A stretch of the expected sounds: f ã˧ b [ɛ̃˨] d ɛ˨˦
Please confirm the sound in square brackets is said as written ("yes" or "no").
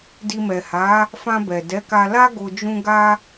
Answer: no